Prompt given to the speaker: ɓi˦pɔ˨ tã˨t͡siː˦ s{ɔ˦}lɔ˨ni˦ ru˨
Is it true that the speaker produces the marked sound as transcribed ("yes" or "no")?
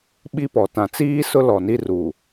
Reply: no